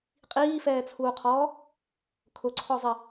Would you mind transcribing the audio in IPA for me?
qʼ iː f ɛː t͡sʰ uː qʰ ɔː | kʰ ʊ ǀʰ ɔ zˤ i

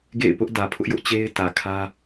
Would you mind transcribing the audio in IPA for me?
ɡ ḛ˦˨ ɪ̯ p ʊ˦ ʔ d ä˨ pʰ ʊ˦ ʔ j ʊ˦ ʔ t͡ɕ e˦ ɪ̯ t ä˨ kʰ ä˦

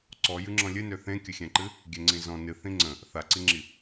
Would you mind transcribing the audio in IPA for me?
ǀ ɔ j ɨ ŋ͡ǁ ɔ̃ lʲ ɨ n ø θ ẽ kʲ ə xʲ ɛ̃ ǃ ɨ | ɡʲ ɛ ŋ͡ǀ ĩ z ɔ̃ n ɨ θ ĩ ŋ͡ǀ ə̃ | θ a ǀ i ŋ͡ǁ i

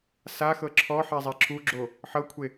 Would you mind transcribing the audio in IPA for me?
s a x ɤ ǁʰ ɔ ħ ɛ zˤ ɛ ǁʰ u ɡ͡ǁ o | ħ ɤ kʷʰ e

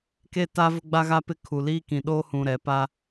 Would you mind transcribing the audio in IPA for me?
k e˦ t a˦ v ʊ˦ ɡ͡b a˦ ɣ a˦ p ɪ˦ kʰ u˨ l iː˦ k ĩ˨ ɗ oː˦ h ũ˨ ɾ ɛ˨ p a˦

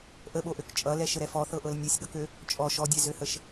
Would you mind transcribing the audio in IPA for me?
ʔ ə ɓ o ʔ ø k t͡ʃʼ ʌ l ɛ ʃ ə ɾ ɛ f ɔ θ ɤ ʔ ɤ l nʲ ø sʲ ɠ ʌ k ø | t͡ʃʼ ɔ ʃ ɔ dʲ ɛ z ø h ə ʃ

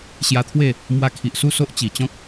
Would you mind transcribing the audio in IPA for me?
ɕ j a˧ t̪ʰ w e˥˧ | m w a˧ kʰ i˨ ʔ s u˥˧ s o˦ ʔ t͡ɕ i˨˩ t͡ɕ ɔ̃˦ k̚

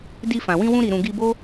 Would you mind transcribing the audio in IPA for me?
d i˧ f ã˨ w ĩ˧ w ũ˧ ɾ i˨ ɾ ũ˨ ɡ i˧ b o˦

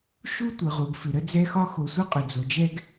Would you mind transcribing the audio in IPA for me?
ʃ u˥ tʷ ɯ˩ ʁ u˩ ɡ f ʏ˩ ɾ ə˥ d͡z ɛ˥ x ɒ˥ x o˨ sʷ ɯ˥ qʼ ʏ˩ d͡z o˩ d͡ʒ ɛ˦ ɡ

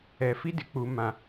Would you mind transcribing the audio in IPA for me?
ɛ˨ f i˦ d ɪ˨ k͡p u˨ m ã˨

